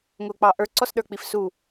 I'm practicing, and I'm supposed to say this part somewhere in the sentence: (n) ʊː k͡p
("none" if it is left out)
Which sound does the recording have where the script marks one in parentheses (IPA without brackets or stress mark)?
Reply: ŋ